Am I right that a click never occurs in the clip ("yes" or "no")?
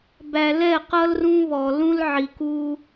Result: yes